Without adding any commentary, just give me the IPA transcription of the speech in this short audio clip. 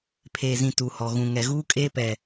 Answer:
pʰeː˨zĩ˨ tu˨hɔ˨ ɣũ˨ŋɛ˨ɣuː˦kʼeː˦ pɛ˨

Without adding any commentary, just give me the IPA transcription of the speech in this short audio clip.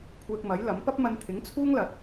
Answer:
kʷʰɛː˧k̚mɐ˨˥jlɐ˨˥m pɐ˥p̚mɐ˧n t̪ʰɪ˨˥ŋt͡sʰuː˥ŋlɐ˨t̚

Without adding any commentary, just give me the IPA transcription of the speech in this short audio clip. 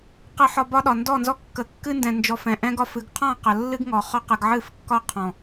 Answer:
qɨ˨ħɒ˨ bɒ˦ɗɒ˨ ndɔ˦˨nzɔ˦ kːə˨kːɨ˦ndɛ̃˨nd͡ʒɔ˨f ɛ̃˨ʔɛ̃˦ ɡɒ˦fɨ˨˦ɡ qʰɔ̃˦˨ qə˨lːɨ˦ɡŋɔ˨ χɒ˦qɨ˨ɡʕɨ˦˨fkːɒ˦ qʰɔ̃˨

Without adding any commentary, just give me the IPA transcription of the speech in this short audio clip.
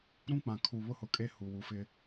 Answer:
ɾũ˦k͡pã˨ kʰu˨ βʊ˦hʊ˨kʼe˦ hu˨ wu˨fɪ˦

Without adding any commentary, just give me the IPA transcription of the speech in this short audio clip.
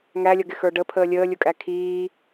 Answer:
ŋælʲʌɡɪxə˞ ɖəpʰəː lʲəːlʲʊkʼæ kʰiː

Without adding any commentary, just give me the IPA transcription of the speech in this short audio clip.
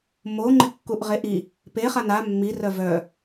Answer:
moŋ͡ǃɪ kːuʔʁeʔi | peχan a mːirœ vœ

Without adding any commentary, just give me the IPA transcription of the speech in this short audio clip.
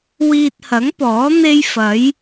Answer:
wiː˧t̚hɐ˨˥ŋpɔː˨˥ n̪e˥jfɐ˨˥j

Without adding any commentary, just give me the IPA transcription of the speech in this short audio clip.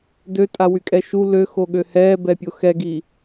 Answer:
døtʼawykʼɛ ʃu løxoɠø hɛːbɛpʲo xɛɡi

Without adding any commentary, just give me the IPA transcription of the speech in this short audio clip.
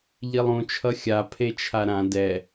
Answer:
ʎilˠũ t͡ʃʰʌxʲa pʰet͡ʃʰaɾã dɛ

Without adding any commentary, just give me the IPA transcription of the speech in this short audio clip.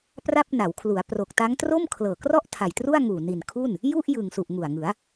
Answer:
pra˥˩p̚na˩˦w kʰlu˩˦a̯ pro˨˩k̚ta˦˥ŋ tro˥˩mkʰlɤː˨˩krɔ˥˩ʔ tʰa˨˩jtru˥˩a̯ ŋuː˨˩ni˨˩nkʰu˥˩n | ju˥˩ʔ jɯ˨˩ŋsu˨˩ʔ ŋu˨˩a̯ŋɯ˩˦a̯

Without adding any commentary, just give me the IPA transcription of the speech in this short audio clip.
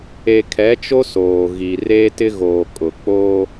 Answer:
e˨kʰɛ˨˦t͡ʃo˦ soː˨ɣi˨ reː˦tɪ˦ ɣoː˨ kʼʊ˨ k͡poː˦

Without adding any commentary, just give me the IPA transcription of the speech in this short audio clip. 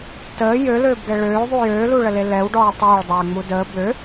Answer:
təː jøløːbɡɛ ɭøːðˤu jøːluɭəle lɛwɖɔː tˤeːɭdˤøːŋ͡mu dəː bø

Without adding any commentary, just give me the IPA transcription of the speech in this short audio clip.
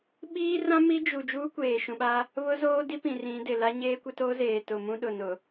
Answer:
ɓiː˦rã˦ mi˦d͡ʒu˨ d͡ʒuː˦kʷeː˨ʃũ˨ɓa˦ | βʊ˦zoː˦di˦pĩ˨ rĩ˨˦dɪ˨ la˦ɲeː˦kʷɪ˦to˦ zeː˨tʊ˨mũ˦ɗʊ˨ nʊ˨

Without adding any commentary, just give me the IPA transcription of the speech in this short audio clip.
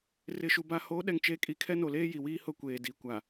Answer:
rɪ˨ʃu˨ ba˨ho˨˦ ɗɛ˨ŋt͡ʃe˨˦ kʼi˨kʰɛ˦no˨leː˦ ji˨wiː˦ hʊ˦kʷeː˨di˨˦ kʷa˨

